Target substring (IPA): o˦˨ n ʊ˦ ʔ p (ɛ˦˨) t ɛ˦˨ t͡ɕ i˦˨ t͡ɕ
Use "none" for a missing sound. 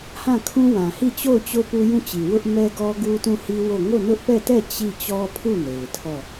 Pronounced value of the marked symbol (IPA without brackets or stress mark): ɛ˦˨